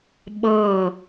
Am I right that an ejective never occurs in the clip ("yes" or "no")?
yes